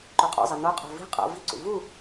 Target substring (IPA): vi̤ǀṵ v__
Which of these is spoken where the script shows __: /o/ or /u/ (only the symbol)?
u